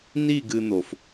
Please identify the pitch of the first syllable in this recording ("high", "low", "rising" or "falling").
falling